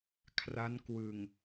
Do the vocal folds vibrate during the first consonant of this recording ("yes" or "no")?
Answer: no